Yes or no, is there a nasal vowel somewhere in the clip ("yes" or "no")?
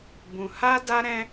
yes